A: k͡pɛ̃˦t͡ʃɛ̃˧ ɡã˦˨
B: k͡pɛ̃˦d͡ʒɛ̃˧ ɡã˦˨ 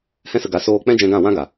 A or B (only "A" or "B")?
B